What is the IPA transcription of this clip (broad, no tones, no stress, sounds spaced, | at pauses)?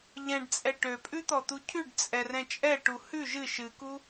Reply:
ʎ ɛ̃ ɖ t͡sʼ ɛ ʈ ø pʼ ʉ t̪ ɔ t̪ u cʰ ʉ ɖ t͡sʼ ɛ r ɛ̃ t͡ʃʼ ɛ ʈ u h ʉ ʒ ɨ ʃ ɨ k u